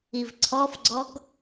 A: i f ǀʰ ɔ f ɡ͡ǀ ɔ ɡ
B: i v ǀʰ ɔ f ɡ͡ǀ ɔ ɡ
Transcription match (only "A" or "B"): B